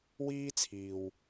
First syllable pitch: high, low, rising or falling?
high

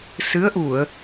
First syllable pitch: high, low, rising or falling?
rising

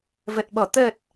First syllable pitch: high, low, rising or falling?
low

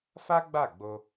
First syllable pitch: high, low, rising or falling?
high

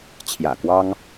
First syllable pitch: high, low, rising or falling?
low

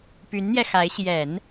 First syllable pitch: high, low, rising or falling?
rising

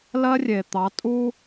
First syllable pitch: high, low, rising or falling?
high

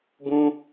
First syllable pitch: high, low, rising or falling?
high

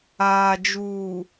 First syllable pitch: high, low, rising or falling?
low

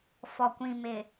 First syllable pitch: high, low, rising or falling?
low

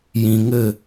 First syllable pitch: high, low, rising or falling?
low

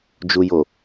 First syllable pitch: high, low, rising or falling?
low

